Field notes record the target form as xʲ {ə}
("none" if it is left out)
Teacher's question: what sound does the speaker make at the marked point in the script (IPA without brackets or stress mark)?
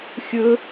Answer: ɵ